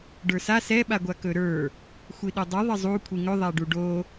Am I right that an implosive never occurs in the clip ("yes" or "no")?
no